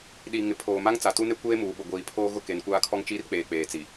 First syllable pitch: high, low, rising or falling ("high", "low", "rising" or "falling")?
low